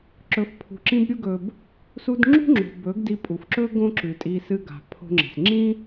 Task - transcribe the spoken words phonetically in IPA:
ǁ ɵ˨ f pʰ ṳ˨ ǁ ĩ˧ b ɾʲ u˧ ɡ ɵ˨ b | s u˧ d ŋ͡ǁ ṳ˦ ŋ͡ǁ o̤˨ b ɵ˨˦ ɡ d i˧ pʼ u˨ f ǁ ɵ˦ ɡ õ˦ ǁ ʉ˨ tʼ i˧ s ɨ˧ ɡ a̤˨ pʰ o̤˧ ŋ͡ǁ e̤˨ s ŋ͡ǁ ĩ˦

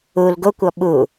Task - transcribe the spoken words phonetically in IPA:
u l ɡ o kʷ ɔ ɓ u

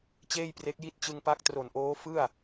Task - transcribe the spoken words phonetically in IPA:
t͡ɕ eː˥˩ j p r e˦˥ k̚ j i˥˩ t̚ t͡ɕ ɯ˧ ŋ p a˦˥ k̚ t r o˨˩ n ʔ oː˦˥ f ɯ˥˩ a̯

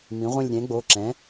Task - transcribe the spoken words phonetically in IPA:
m ĩ˩˥ ʁʷ ə̃˥˧ lʲ ɾʲ ɛ̃˩˥ ɡ͡b o˩˧˩ ǁ ɛ̃˩˥

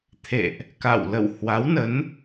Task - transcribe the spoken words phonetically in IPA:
t̪ʰ ḛ˧˨ ʔ | k a̰˧˨ w l ə̰˧˨ w h w a˨˦ w n ə˨˦ n

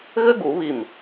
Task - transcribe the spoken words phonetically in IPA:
ɣ ɘ˥ ɡ u˨˩˦ β i˧˩ m

